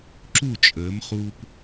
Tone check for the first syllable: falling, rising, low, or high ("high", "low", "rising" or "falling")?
falling